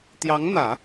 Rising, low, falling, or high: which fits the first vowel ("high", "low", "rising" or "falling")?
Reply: rising